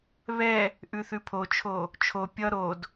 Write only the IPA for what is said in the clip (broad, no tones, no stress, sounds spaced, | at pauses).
β ɛ | ʔ ʉ θ ʉ pʰ o t͡ʃʰ o | t͡ʃʰ o pʲ ʌ ɾ o d